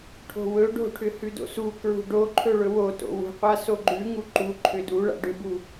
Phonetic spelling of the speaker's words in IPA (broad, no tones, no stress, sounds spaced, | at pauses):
ʈʰ o̤ w ɵ ɖ o̤ ʈʰ ʏ h ʉ d o̰ s u k ɹ ṳ ɖ o ǃʰ ɵ ɭ ɵ w o t o̰ w ṳ qʷ a s o ɡ͡ǃ ʉ ŋ u ǃ u ǃʰ ʏ d u ɭ a̰ ɖ ʏ b u